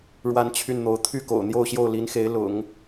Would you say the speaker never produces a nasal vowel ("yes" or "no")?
yes